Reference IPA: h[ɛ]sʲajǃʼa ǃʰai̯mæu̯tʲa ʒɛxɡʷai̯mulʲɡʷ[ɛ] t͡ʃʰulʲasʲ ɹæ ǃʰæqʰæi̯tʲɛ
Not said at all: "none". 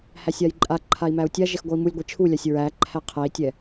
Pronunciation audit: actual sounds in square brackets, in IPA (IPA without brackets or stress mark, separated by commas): æ, ɛ